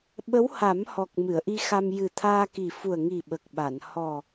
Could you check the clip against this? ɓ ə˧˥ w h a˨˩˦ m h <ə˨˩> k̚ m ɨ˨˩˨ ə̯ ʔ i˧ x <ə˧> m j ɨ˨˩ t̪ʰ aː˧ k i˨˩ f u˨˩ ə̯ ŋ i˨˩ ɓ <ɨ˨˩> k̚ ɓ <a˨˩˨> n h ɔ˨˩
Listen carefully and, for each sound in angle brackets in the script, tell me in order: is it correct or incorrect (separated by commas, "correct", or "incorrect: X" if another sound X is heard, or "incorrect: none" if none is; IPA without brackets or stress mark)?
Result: incorrect: ɔ˨˩, incorrect: a˧, incorrect: ə˨˩, correct